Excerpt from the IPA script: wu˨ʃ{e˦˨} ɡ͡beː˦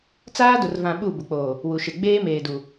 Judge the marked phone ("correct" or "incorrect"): incorrect